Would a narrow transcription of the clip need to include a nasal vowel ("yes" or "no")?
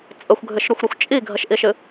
no